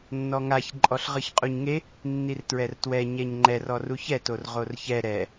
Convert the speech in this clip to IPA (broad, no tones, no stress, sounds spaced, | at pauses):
nː ɔ ŋ a ç ǃʼ ɔ ɬ ʁ ɯ ç qʼ u ɲ ŋ e | nː i r t ɹ ɛ r t w ɛ ɲ ɛ ɲ ŋ͡ǃ ɛ r ɔ r u ç ɛ t o r ʁ o r ç ɛ ɾ ɛ